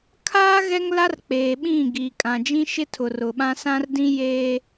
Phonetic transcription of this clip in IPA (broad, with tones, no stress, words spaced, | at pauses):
kʰaː˦ ɣɛ˦ŋla˦rk͡peː˨ɓĩ˦˨ ɡiː˨kʼã˨d͡ʒĩ˦ʃɪ˦ tʰʊ˨rʊ˨ɓã˦ sã˦rdĩ˦ jeː˦